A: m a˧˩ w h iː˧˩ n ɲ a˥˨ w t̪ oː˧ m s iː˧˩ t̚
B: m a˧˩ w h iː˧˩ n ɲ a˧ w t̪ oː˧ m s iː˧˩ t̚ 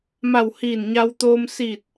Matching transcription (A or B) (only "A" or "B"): B